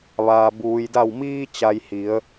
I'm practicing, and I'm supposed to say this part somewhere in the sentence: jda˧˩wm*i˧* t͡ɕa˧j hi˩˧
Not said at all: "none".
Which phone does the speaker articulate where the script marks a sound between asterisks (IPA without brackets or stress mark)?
iː˧